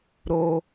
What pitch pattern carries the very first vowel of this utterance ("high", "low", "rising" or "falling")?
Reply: low